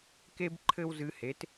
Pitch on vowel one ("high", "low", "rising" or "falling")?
high